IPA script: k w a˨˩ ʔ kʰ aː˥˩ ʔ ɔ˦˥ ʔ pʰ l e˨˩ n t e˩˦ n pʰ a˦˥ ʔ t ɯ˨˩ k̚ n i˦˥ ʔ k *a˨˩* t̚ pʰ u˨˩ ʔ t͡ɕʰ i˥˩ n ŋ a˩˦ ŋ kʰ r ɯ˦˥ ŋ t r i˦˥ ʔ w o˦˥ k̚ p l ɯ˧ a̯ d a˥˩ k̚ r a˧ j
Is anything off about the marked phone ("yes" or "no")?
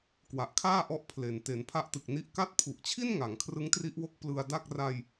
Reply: yes